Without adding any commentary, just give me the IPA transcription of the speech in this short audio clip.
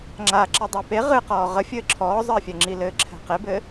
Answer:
ŋ͡ǁa ǁɛdˤɛpe ʁɨqɔː ʁəfʲɘː ǁʰɔːzˤəːfʲɛŋ͡ǁi lɘːǁʰɛ̤qebɘ

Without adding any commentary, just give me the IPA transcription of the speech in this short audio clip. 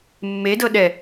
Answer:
mːedɤ ɗɛ

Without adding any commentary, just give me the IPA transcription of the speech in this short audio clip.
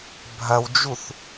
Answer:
bʱɐwd͡ʒuθ

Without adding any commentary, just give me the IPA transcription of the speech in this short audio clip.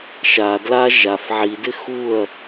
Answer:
ʃa dla ʒaf ʕidɪ xuɐ̯

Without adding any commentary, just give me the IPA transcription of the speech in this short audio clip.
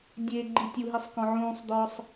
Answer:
dʲe ɡ͡ǃitʲuɦisˤ kɔ̃ʕũːsˤd̪ɔːsˤ

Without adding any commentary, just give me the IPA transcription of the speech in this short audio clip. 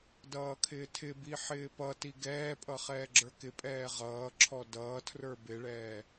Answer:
dʌːkʰɪːtʰɪbi ħɪːpʌti ɡɛːpʼʌ χɛːɡ͡ǁə˞kɪpʼɛː ʁʌːǁʰɔ dʌːtʰrə˞ bɪɭɛː

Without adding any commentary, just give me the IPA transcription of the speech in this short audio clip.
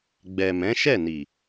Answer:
ɡ͡bɛ˨ mɛ̃˨˦ʃɛ˦˨ni˨

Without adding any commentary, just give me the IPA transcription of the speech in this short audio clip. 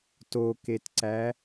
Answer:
toketǀæ

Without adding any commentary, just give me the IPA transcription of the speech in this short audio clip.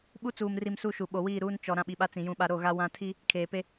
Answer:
ɓu˦t͡suː˨mri˨m su˦ʃu˨ ɓo˨wiː˦˨ɾuː˦n t͡ʃɔ˨ ɾã˦ɓi˨ɓa˦ t͡sĩ˨jũ˦ɓa˦ ɾo˦˨ɣa˦ wã˦ tʰi˦ | kʰeː˨pe˦

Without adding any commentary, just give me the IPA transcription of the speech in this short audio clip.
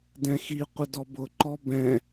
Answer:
dɛ̃xiqʷə dɔbʊǃɔ bɛ̃

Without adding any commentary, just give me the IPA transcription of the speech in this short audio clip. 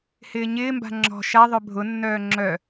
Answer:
hɪːɲɪːmba̤ ŋ͡ǁɔ̤ ʃaðˤœ bʱʊnːœː ŋ͡ǁœ

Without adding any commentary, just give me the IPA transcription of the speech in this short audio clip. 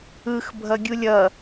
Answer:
ɯxbʱʌɡʲulʲ ʌ

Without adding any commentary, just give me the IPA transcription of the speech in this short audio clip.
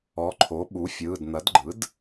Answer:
ɔ˩˥ǃʰo˩˥ɓu˩˥fʲɯː˩˧˩d n̪ɐ˩˥dɡ͡ǃɯ˩˥d

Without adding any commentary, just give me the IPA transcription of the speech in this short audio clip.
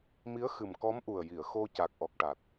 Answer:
mi˧˥ə̯xɨ˨˩mkɔ˧˥m ʔu˨˩ə̯ji˨˩˨ə̯xo˧ ca˨˩k̚ʔɔ˨˩k̚ʈa˨˩t̚

